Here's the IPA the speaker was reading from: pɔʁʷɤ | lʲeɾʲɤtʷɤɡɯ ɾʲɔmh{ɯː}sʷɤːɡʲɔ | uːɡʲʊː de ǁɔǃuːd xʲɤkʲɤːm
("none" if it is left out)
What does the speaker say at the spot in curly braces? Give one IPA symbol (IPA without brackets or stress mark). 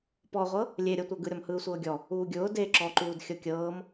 ɯː